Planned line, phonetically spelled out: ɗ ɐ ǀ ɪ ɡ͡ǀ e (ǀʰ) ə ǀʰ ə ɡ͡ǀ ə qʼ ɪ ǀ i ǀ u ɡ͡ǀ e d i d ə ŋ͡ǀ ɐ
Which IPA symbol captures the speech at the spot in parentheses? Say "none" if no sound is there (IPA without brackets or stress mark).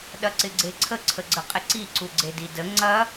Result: ǀʰ